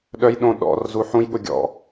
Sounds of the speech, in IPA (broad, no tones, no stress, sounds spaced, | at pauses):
ɗ œ j ɗ õ ɗ ɔ̰ r z u ħ ũ j ɠ ʊ ɡʲ ɔ̰